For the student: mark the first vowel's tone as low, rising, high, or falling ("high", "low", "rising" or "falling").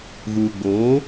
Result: low